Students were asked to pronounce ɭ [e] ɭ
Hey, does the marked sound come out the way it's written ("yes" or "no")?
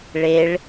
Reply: yes